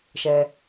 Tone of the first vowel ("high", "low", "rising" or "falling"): low